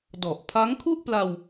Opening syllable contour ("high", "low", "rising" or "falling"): low